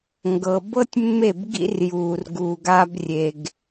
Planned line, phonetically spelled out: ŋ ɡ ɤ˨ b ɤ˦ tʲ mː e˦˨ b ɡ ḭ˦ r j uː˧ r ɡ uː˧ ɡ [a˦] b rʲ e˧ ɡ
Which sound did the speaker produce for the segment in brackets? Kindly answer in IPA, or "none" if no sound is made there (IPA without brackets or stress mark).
aː˦